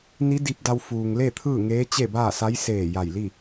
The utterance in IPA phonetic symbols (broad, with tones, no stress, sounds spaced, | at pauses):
n i˧˥ d i˧ p̚ d a˧ w f uː˩ ŋ l e˥˨ t̪ʰ ɯː˥˨ ŋ eː˧˥ t͡ɕ e˥˨ b aː˥˨ s a˧˥ j s eː˧˩ j a˧˩ j l i˥˨